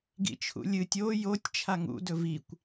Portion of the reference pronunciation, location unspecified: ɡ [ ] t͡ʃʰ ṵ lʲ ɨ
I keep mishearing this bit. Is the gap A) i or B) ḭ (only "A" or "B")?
B